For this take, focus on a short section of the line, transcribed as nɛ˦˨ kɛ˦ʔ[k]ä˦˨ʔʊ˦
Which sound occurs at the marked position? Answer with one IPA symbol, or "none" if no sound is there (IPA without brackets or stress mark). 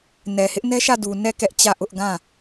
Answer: t͡ɕ